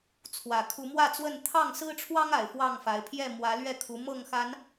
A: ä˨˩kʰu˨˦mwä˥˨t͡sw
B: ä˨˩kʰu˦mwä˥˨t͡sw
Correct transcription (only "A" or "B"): A